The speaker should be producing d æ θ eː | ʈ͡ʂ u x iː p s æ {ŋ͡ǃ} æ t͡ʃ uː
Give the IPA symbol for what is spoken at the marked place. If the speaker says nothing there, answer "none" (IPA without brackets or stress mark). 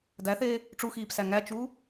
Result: ŋ